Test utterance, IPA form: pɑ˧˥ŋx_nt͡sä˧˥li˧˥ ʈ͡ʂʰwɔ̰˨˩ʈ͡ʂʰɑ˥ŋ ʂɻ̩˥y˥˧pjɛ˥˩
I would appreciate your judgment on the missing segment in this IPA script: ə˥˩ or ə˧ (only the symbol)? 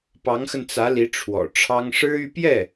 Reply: ə˧